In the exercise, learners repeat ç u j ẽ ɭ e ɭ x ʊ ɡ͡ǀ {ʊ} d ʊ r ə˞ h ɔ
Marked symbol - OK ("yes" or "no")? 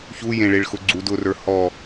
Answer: no